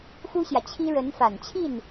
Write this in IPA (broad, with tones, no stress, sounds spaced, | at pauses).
x u˥ ɕ j ä˨ t͡ɕʰ i˥ ɻ ə˧˥ n f a˨˩ n t͡ɕʰ i˥˩ n